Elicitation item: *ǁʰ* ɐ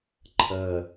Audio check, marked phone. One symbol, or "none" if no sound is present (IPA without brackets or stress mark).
ǃʰ